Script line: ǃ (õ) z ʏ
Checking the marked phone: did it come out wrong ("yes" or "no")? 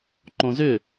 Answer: no